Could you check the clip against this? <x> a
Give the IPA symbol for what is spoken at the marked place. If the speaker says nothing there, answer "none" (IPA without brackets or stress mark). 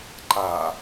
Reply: ǃ